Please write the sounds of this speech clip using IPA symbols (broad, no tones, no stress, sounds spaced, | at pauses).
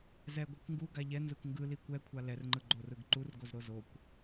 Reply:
z ɛ ɡʷ ɛ kʷ ŋ ɡ u ɡ a ʎ ɛ n z ɯ kʷ ŋ ɡ ɯ l i kʷ ɛ kʷʰ a l ɛ r ŋ͡ǃ ɯ ɡ͡ǃ o r ɯ ɡ ǃ u r ɡ o z ɾ o z o kʷ